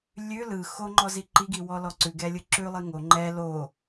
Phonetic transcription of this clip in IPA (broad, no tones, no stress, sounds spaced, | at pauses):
lʲ ʉ l ɯ x o ŋ͡ǃ ɔ z i ǃ i ɡ i w ɔ l ɔ ǀ ʉ ɡ ɛ lʲ ɯ ǁ ʉ lˠ i ŋ o ŋ͡ǃ ɛ l o